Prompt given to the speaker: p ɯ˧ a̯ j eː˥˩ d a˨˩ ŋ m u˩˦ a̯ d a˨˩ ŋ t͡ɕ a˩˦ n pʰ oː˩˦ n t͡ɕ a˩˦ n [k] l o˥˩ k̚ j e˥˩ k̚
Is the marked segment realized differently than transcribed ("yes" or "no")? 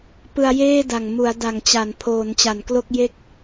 no